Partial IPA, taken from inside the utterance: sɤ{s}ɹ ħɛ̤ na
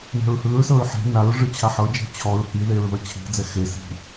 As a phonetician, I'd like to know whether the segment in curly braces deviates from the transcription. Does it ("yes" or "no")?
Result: yes